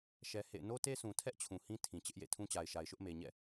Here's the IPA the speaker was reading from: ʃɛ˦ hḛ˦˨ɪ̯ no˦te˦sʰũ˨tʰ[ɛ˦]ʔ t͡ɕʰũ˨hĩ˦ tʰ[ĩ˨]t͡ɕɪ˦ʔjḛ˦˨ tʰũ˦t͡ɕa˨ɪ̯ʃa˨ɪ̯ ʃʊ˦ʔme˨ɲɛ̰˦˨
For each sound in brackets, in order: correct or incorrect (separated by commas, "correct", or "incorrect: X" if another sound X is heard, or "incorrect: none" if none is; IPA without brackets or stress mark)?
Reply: correct, correct